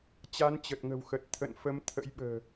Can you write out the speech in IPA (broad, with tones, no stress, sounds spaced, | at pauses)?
t͡ɕ a˨˦ n t͡ɕ ə˨˩ t̚ ŋ ə̤˨˩ w x ə˨˩ t̚ t̪ʰ ə̰˧˨ n f ə˨˦ m t̪ʰ ə̰˧˥ j ɓ ə̤ː˨˩